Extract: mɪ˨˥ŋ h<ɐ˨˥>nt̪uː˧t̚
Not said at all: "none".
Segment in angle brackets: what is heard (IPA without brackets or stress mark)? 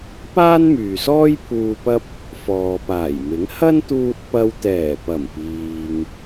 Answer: ɐ˥